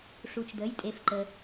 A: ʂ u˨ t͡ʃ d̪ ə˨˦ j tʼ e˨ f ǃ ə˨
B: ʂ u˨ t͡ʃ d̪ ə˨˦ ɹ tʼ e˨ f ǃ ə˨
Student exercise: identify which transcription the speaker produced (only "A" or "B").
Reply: A